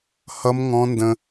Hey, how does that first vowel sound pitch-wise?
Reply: high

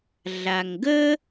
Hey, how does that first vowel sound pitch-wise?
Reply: low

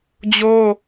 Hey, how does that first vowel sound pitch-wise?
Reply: high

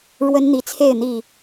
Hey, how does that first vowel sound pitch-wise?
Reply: high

